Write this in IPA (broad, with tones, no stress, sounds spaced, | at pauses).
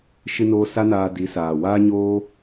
ʃ ɨ˧ n oː˧ s a˦ n aː˧ d i˨˦ s aː˨ w aː˦ ɲ oː˦